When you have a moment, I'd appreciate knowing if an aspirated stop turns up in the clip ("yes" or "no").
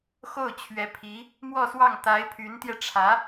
yes